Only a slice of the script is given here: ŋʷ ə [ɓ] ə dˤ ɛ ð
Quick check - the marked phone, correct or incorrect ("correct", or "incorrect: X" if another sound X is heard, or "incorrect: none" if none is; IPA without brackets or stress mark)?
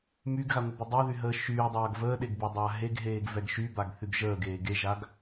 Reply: incorrect: b